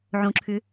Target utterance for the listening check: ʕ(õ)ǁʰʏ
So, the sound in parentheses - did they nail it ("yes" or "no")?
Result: yes